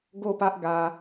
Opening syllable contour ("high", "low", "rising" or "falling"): falling